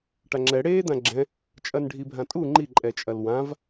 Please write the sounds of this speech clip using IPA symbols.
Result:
ʈ a ŋ͡ǁ ɛ ɽ eː d̪ ã ɡ͡ǁ ɛ̃ | t͡ʃʼ ɐ n ɖʱ i bʱ ã tʼ u ŋ͡ǃ i ǃʼ ɛ t͡ʃʼ ɐ l w ã v

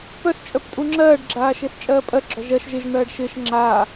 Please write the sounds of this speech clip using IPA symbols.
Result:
p œ s t͡ʃʼ œ p tʼ u ŋ͡ǁ ɜː ɖ ɡ͡ǁ aː ʃ ɪː s t͡ʃʼ ɜː pʼ ɜ ɡ͡ǁ ɔ ʒ ɜ ʃ ʒ ɪ ʒ n̪ ɜː ɖ ʃ ɪː ʃ ŋ͡ǁ aː

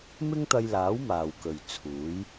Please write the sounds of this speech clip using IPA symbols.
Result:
m ɪ˥ ŋ t̪ ɐ˧ j l aː˨˥ w m aː˨ w k ɵ˨ ɥ t͡sʰ uː˨˥ j

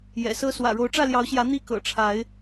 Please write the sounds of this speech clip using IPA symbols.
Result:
j ɛ̰˨˩ s ɤ˦ s w ä̰˨˩ ɻ o˨˦ ʊ̯ ʈ͡ʂ ä˥˨ l j ɑ˨˦ ʊ̯ ɕ j ä˨˦ n̪ i˥˨ k ɤ̰˨˩ ʈ͡ʂʰ a˨˦ ɪ̯

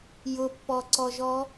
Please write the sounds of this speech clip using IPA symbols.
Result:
j ʊ pː ɔ ǀ ɔ ʒ ɔ

